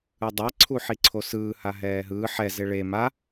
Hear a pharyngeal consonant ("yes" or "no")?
yes